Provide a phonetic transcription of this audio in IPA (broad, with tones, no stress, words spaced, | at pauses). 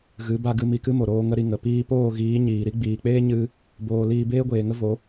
ɣɨ˨˦ba˧ɡɨ˧ mi˧kɨ˦mo˨ɾoː˧ ŋə˦ɾi˧ŋə˨ piː˧poː˦˨ɣiː˨˦ ɲiː˨ɾi˦ ɡ͡biː˨k͡peː˦ ɲɨ˦ | boː˧ liː˧beː˦ɡʷeː˨ŋə˦ vo˨˦